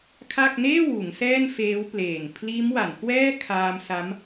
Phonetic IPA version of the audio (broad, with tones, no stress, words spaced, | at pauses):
kʰa˥˩k̚ neː˥˩wuː˩˦ŋ sɛː˥˩nfeː˦˥w pleː˨˩ŋ pʰliː˦˥mwa˩˦nkwɛː˥˩kʰaː˧m sa˦˥m